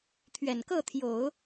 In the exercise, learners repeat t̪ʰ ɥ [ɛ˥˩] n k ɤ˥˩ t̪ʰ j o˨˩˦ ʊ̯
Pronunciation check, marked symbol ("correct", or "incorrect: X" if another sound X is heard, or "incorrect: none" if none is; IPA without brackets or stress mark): incorrect: ɛ˨˩